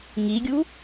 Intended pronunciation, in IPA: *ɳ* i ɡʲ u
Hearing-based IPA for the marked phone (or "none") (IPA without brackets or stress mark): ŋ